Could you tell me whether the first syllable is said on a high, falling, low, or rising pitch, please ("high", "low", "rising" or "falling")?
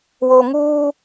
low